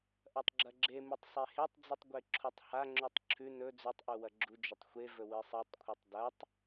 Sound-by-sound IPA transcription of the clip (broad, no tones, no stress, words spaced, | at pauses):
ʔɐtˤɡ͡ǁɐɡ͡ǁemɨtˤ sˤehetˤd͡zɨtˤ ɡʷeǁʰutˤhaŋ͡ǁʉtˤ ǁʰʉ nɵ d͡zʉtˤʔu wɐɡ͡ǁud͡ʒɵtˤ xʷevɵ wɨsˤitˤkʷʰɨtˤ dɐtˤ